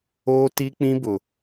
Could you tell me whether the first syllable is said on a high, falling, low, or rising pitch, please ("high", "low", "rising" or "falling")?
high